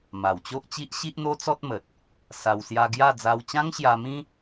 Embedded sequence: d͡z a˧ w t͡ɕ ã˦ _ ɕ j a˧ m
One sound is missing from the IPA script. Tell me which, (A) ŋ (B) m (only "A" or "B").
A